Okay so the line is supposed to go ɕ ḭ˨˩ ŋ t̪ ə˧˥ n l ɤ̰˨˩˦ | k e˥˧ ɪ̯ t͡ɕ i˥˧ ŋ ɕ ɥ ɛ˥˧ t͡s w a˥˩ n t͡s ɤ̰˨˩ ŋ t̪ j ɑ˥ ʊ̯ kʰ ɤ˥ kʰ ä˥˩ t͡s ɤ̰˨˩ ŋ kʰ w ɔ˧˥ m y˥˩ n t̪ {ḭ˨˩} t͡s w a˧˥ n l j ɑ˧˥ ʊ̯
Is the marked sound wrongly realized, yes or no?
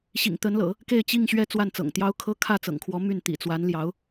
no